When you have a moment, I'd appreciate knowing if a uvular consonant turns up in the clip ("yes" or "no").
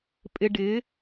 no